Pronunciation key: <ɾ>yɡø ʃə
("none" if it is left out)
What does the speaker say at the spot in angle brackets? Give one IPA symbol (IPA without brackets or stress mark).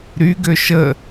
ɾ